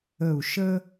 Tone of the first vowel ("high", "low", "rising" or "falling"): low